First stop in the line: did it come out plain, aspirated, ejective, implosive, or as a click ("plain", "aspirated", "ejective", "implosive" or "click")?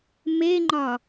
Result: click